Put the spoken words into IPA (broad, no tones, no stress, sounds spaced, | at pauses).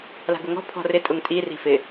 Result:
l a̤ ɡ ʊ ŋ ɔ̤ pʰ ɔ̤ r ɪ tʼ ʊ ŋ tʼ i r i̤ f ɪ